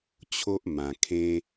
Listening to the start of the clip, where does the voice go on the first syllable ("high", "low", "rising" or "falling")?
high